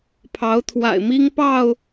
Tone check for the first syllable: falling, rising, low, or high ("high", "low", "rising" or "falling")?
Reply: rising